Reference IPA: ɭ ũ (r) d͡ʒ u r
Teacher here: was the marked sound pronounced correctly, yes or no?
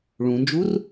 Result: no